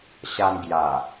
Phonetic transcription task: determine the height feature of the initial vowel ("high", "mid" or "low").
low